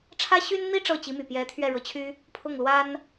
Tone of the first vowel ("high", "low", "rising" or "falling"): high